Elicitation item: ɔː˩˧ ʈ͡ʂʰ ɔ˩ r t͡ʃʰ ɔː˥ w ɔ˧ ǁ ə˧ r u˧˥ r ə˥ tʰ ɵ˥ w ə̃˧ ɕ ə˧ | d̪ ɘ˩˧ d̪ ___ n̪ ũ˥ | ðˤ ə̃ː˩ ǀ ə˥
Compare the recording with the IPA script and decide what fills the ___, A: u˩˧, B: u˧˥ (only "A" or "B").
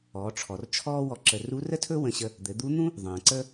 B